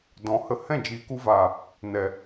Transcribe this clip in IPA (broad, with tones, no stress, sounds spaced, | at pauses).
d ɔ̃˨ h ə˧ h ɛ̃˦˨ d͡ʒ iː˨ k u˧ v aː˨ | n ɛ˨